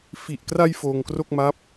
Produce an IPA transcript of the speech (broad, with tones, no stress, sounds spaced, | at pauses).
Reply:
f i˨˩ ʔ k r a˧ j f oː˧ ŋ k r o˥˩ k̚ m a˦˥ p̚